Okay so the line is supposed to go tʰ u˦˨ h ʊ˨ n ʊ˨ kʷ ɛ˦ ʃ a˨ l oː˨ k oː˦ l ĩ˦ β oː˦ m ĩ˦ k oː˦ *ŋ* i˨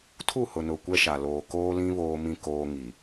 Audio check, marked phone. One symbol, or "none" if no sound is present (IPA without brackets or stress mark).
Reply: ŋ